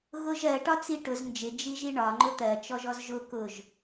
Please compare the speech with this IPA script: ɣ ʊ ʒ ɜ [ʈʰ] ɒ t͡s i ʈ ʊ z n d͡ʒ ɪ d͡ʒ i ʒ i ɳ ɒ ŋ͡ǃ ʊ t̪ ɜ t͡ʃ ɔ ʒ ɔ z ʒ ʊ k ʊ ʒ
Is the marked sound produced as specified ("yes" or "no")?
no